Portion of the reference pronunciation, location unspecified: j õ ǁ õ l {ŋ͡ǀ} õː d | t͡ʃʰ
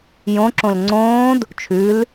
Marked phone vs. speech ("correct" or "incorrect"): correct